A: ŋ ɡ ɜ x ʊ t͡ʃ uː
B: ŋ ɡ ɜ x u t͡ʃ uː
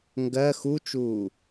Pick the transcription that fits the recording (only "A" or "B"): B